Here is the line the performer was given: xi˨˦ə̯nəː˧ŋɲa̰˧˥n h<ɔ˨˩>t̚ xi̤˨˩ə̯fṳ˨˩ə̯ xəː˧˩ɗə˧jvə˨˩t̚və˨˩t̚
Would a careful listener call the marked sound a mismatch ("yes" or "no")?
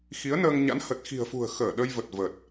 yes